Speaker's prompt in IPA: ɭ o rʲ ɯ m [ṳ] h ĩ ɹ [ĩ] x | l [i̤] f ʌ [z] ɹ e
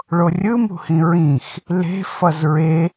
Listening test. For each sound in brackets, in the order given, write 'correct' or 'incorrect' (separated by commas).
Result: correct, correct, incorrect, correct